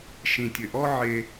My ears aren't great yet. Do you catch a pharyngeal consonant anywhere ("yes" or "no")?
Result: yes